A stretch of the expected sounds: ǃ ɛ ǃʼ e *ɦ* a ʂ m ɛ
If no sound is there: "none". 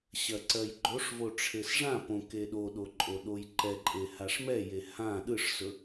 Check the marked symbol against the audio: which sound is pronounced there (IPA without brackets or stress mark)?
h